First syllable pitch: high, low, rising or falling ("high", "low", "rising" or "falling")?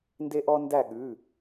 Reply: high